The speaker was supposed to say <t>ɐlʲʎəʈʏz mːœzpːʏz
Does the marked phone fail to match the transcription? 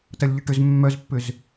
no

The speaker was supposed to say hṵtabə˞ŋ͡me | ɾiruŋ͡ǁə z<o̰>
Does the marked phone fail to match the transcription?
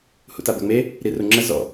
yes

